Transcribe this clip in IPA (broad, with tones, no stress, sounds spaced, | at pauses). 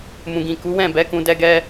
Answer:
m ũ˨ ɡ ĩ˨ k u˨˦ w ɛ̃˦˨ b ɛ˨˦ k ũ˧ d ɛ˦ ɡ ɛ˦